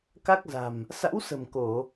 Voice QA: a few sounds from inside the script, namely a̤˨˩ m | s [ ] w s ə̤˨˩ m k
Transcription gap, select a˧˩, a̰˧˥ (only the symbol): a̰˧˥